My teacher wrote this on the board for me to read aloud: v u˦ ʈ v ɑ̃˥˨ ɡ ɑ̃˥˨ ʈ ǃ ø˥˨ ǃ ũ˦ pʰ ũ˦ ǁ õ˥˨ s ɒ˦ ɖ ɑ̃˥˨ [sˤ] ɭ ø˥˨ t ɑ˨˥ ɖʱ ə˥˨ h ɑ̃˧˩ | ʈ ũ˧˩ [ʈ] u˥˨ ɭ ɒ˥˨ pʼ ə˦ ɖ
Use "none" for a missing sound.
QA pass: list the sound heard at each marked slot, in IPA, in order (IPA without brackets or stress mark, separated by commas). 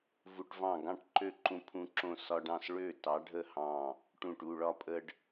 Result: s, ʈ